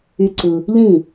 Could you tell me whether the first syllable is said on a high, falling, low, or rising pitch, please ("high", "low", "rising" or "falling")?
high